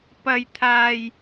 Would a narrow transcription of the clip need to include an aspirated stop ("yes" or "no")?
yes